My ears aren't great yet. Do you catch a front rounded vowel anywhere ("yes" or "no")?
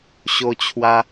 no